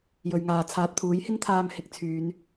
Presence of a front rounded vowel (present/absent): present